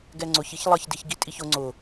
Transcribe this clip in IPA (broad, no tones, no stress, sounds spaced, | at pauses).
ɡ ɛ ŋ͡ǀ ʊ ç i ç lˠ ʌ ç d i ç ɡ i tʼ i ç ʊ ŋ͡ǀ ʊ